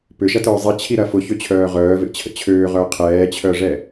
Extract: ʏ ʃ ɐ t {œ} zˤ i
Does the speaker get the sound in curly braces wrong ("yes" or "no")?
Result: yes